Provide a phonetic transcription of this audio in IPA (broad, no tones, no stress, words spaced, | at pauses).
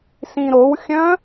sĩɾowxʲœ̃